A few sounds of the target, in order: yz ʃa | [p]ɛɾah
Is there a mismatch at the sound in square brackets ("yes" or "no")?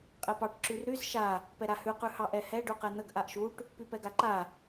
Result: no